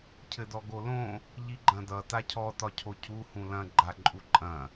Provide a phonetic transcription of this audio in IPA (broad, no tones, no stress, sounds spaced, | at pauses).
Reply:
cʰ ɘ d ɔ ɡ o l õ | ʎ i ɡ͡ǃ ɐ̃ d ʌ t a cʰ ɔ t ɒ cʰ o cʰ u h ũ l ɐ̃ ɡ͡ǃ a ǃʼ u ǃʼ ɐ̃